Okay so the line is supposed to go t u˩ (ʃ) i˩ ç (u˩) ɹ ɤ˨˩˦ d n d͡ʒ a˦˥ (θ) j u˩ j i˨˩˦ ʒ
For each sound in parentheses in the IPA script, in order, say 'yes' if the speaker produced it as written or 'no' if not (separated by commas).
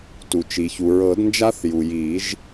no, yes, yes